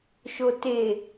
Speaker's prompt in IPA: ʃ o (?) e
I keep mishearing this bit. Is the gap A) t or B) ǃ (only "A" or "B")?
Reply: A